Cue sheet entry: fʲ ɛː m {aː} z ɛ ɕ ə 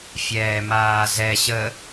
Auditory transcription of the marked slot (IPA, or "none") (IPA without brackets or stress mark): aː